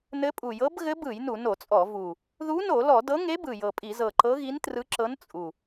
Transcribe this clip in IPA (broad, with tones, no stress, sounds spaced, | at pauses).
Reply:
n ɘ˧˥ pʼ u˨˩ j ɤ˧˥ b ɣ ɘ˧˥ b ɯ˧˩˧ j n u˧˩˧ n o˧˩˧ t͡sʼ ɔ˧˩˧ v u˨˩ | ð u˧˥ n o˧˩˧ l ɔ˧˩˧ d ɤ˧˥ ŋ e˧˥ b ɯ˨˩ j ɤ˨˩ pʼ i˧˩˧ z ɤ˨˩ ǃ ɤ˧˥ ɣ i˧˥ n t r ɯ˧˥ ǁ ɤ˧˥ n t͡sʼ u˨˩